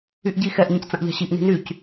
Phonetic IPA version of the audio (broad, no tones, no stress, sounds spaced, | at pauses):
y ʔ ɟ i x ɛ ʔ ɲ ĩ c t͡s ɐ̃ ʔ ʎ a̤ ɕ i ʔ n i̤ n y c